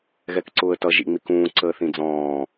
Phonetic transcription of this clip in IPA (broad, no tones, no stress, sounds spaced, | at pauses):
ɣ ɛ k ǀ ʊː ə̯ t ʌ ʒ ḭ ŋ͡m i k ũː ǀ əː θ ĩ d͡z ɔ̃ː